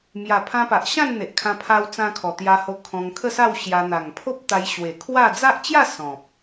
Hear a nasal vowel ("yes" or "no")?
yes